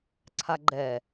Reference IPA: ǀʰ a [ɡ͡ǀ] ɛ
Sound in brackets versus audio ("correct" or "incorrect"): incorrect